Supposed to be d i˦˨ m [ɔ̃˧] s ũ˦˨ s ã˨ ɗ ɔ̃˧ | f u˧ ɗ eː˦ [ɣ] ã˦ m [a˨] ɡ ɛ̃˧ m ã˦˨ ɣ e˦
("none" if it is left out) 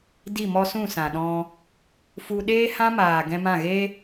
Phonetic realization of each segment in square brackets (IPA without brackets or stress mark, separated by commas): ɔ˧, h, aː˨